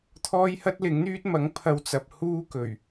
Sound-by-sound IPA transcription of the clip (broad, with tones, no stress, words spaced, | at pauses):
t̪ʰɔː˥jhɐ˥t̚lɪ˨˥ŋn̪yː˥t̚ mɐ˨˥ŋpʰɐ˧wt͡sɐ˨p̚ huː˥kɵ˨˩ɥ